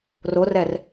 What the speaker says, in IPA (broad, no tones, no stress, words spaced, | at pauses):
rorɛr